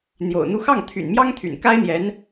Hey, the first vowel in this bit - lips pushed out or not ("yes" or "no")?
yes